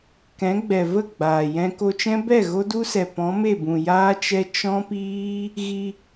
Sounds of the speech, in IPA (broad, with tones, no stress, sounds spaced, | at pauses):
k ɛ̃˨˦ ɡ͡b ɛ˨ v ə˦˨ ɡ͡b aː˨ j ɛ̃˦ k o˧ t͡ʃ ɛ̃˦ b ɛ˦˨ ɣ o˦ d u˦ s ɛ˨ p ɔ̃˨˦ m e˦˨ b ũ˨ j aː˦ t͡ʃ ɛ˦ t͡ʃ ɔ̃˦ p iː˦ | ɣ i˧